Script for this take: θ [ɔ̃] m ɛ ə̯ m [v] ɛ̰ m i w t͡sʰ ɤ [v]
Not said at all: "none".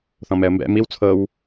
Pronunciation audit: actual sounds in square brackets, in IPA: ɔ̃, b, w

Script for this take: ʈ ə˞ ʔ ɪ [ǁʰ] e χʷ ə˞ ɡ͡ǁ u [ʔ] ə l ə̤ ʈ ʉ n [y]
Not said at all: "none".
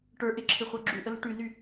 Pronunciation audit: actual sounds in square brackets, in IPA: ǁʰ, ʔ, y

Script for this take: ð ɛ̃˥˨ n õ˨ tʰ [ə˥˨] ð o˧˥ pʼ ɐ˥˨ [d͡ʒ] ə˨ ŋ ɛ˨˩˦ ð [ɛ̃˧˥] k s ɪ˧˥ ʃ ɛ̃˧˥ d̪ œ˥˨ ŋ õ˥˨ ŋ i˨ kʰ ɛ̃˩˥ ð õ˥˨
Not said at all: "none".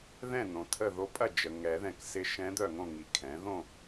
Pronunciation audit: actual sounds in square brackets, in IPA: ə˥˨, d͡ʒ, ɛ̃˨

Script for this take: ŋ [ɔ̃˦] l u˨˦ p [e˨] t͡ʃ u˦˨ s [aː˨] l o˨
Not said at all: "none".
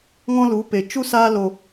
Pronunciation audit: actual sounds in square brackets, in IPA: ɔ̃˦, e˨, aː˧

